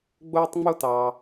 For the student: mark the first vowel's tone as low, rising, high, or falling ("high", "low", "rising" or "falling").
high